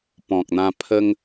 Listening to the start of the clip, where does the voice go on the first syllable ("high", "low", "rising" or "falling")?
low